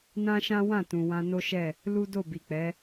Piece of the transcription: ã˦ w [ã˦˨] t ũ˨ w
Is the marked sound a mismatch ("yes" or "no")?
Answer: no